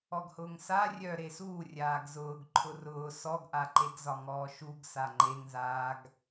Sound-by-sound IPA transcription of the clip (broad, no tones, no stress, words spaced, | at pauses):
ɔɡhʊːŋsa rʲœ ɾesuː rʲaːɡzʊːɡ ǃʰʊrʊː sɔɡʔaǃeɡzɒ ŋɔːʃuɡ saŋ͡ǃeŋzaːɡ